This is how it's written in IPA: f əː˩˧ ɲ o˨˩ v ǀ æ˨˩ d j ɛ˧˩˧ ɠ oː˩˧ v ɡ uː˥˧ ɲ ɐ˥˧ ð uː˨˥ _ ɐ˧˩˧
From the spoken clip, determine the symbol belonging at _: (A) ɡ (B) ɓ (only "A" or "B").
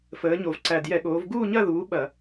B